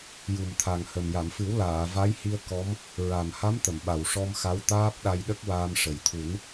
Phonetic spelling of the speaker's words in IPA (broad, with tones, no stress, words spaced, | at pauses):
ju˨˩mt̪ʰa˨˩ŋhə˨˩m ja˨˩˨mfɨ˨˩˦w laː˨˩˨va˧˥jhi˧ə̯ kɔ˧˥m | ɹa˨˩mha˧˥mt̪ə˨˩˨m ɓa˨˩wʂɔ˧mxa˧˥w t̪aː˦˥p̚ɗa˧j ɗə˦˥k̚ waː˧mʂə˨˩j t̪ʰu˨˩˦n